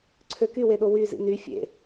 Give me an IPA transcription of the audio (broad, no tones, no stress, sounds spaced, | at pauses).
ǀʰ ø k y w e ɗ o w y z ḭ n y fʲ ḛ